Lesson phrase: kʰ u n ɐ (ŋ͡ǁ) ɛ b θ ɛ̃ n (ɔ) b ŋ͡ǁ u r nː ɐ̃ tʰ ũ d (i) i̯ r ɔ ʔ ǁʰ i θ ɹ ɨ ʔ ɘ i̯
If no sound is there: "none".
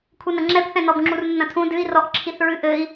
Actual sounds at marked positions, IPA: ŋ͡ǁ, ɔ, ɨ

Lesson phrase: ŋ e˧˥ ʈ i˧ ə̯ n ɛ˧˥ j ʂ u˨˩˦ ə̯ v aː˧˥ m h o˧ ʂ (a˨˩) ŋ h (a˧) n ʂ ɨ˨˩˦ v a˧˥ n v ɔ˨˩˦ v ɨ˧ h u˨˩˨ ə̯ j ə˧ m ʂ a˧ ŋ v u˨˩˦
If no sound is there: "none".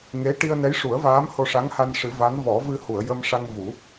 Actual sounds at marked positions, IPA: a˧˥, a˧

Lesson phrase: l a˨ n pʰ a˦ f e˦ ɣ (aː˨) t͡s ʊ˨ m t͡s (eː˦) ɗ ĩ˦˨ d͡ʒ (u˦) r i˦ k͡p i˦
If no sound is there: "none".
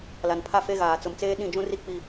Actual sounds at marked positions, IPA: aː˨, eː˦, ũ˦

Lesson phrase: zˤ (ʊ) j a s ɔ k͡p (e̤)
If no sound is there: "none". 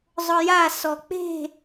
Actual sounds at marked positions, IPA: ʊ, e̤

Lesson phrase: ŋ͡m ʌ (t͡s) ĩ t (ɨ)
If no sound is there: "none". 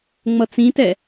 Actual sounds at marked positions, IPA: t͡s, ɛ

